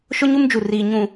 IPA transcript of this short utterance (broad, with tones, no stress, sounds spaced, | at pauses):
ʃ ʊ˦ ɲ u˦ m d͡ʒ u˨ r iː˨ ɲ ũ˨